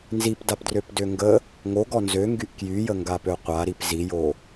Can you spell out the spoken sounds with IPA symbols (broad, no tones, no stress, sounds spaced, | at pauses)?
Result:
n z i p d a p d r ø p d ø ŋ ɡ ə | ŋ o ɡ ɔ n z ø ŋ ɡ y ʔ k j y j ə ŋ ɡ a p ø qʷ a ɾ i p z i j o